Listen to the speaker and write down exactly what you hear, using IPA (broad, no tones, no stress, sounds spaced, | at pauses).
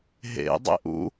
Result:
ɦ ḛ dˤ ḛ ʔ ṵ